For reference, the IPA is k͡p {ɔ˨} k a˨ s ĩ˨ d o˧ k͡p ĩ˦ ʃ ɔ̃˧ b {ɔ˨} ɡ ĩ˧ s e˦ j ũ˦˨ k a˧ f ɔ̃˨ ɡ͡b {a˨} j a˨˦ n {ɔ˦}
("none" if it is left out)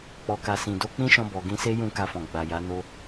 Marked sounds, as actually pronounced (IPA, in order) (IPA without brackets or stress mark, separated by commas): ɔ˨, ɔ˨, a˨, o˦